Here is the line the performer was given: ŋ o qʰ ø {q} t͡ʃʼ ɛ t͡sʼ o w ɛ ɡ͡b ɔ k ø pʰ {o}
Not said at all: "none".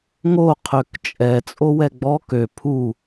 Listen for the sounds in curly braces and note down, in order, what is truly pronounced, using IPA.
k, u

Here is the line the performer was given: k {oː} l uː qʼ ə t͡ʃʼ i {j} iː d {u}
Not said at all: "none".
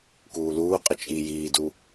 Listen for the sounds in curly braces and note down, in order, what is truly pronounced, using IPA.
uː, j, u

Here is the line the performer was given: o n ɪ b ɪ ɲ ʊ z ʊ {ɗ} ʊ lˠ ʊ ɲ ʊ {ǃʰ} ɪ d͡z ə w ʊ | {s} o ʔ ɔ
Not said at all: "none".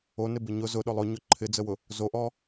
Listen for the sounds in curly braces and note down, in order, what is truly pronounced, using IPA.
ɗ, ǃʰ, z

